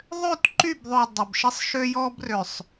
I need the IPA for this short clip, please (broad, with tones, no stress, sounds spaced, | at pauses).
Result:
ðˤ ø˦˨ t ǃ y˦˨ b ðˤ ø˨ dˤ ə˨ b ʃ ɪ˦ sˤ ʃ ø˦ j ɔ˦ b r ø˨ sˤ